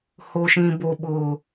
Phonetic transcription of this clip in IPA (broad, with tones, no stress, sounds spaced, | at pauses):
h o˨ ʃ ĩ˨ b o˨ ɓ ʊ˨